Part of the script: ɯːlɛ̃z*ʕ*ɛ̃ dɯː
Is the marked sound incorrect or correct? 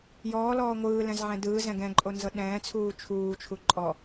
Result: correct